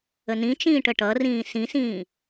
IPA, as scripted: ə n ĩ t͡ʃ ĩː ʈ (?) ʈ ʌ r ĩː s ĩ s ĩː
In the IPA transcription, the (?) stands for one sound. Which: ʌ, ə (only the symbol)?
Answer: ə